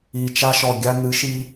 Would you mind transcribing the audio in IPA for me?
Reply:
i˨˩ t͡ʃ a˦ ʃ ɔ˨˩ ɡʲ a˦ n̪ ɨ˨˥ ʃ i˦

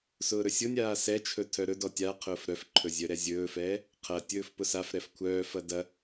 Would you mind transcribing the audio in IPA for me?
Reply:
s ʊː ɾ ɵ sʲ ʊ nʲ aː s ɛ t͡ʃʰ ɵ tʰ œ ɾ ɵ d ɔ tʲ a qʰ ʊː f ɾ œ f ǃʰ ɵ zʲ œ ɾ ɛ zʲ ɵː f ɛː | qʰ ɐ tʲ ɵː f p ʊ s a f ɾ ɛ f kʷʰ œː f ɐ d ɐ

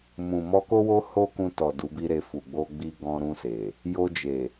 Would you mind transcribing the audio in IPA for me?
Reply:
m ũ˨ m ɔ˧ k o˦ w o˦ h o˦ k ũ˧ t ɔ˨ d u˨˦ b i˦ ɾ e˧ f u˨ ɡ͡b o˧ ɡ͡b i˧ ɡ ɔ̃˧ ɾ ũ˧ s e˨ | j o˧ d͡ʒ e˨

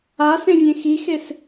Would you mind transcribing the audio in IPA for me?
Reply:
a s ẽ vʲ ẽ x i x e s

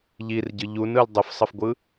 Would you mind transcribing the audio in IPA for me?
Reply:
ʎ i r ɟ ɯ ʎ u n ɯ l dˤ ə f sˤ ə f ɡʷ ɯ

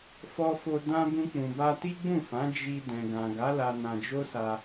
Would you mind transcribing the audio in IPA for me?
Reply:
f ɔ˧ f o˧ d ã˧ b ũ˧ k͡p ũ˨ b a˧ t i˦ ɡ͡b ũ˦˨ f ã˨˦ d͡ʒ i˧ d ɛ̃˨ ɡ ã˨ ɡ a˨˦ l a˧ n ã˧ d͡ʒ o˦ s a˧

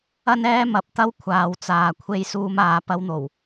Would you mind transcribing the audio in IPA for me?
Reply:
ɐ˥ n ɛː˥ m ɐ˨˥ p̚ t̪ ɐ˥ w kʷʰ aː˨ w t͡s aː˨ kʷʰ e˧ j s uː˧ m aː˨˧ p ɐ˧ w n̪ o˨˩ w

